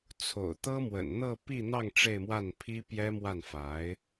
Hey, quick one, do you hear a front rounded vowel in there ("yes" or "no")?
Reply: no